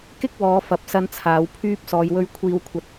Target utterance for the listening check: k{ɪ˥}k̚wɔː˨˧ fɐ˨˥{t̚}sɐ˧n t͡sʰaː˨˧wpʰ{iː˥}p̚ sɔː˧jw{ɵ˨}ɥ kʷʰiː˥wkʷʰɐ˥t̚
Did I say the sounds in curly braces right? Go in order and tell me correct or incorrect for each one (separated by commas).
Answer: correct, incorrect, incorrect, incorrect